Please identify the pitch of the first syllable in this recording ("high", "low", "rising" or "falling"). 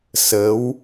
rising